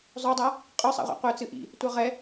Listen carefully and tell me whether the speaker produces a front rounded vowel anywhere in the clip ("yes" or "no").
yes